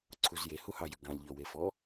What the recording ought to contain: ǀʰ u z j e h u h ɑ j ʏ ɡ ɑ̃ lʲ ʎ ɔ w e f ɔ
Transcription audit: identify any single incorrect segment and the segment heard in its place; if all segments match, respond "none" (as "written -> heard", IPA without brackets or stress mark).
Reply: none